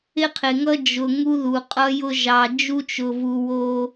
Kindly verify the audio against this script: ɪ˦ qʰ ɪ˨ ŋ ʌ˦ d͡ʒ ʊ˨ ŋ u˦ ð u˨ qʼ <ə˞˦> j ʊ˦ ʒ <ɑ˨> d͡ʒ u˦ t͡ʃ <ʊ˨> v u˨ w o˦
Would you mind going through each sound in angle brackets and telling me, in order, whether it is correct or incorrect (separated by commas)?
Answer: incorrect, correct, correct